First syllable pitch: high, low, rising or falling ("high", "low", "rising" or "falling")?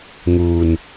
low